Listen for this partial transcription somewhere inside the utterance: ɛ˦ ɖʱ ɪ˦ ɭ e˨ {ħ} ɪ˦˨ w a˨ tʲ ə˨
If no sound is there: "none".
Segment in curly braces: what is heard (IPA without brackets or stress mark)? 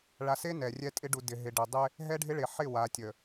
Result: ħ